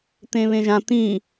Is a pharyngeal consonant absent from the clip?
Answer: yes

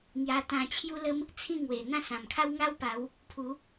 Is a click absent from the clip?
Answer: yes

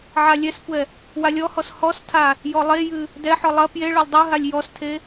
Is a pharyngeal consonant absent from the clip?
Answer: no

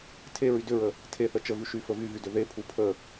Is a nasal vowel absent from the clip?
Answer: yes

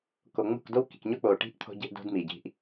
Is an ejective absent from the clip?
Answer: yes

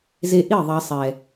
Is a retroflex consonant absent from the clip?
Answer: yes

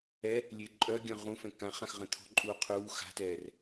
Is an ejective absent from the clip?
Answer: no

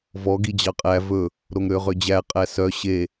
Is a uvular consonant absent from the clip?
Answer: no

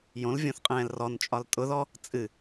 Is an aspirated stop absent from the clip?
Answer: yes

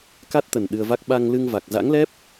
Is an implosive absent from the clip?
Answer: no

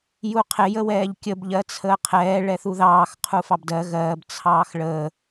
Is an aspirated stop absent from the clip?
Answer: no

